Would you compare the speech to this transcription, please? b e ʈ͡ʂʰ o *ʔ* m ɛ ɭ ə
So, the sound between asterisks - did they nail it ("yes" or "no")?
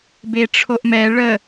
yes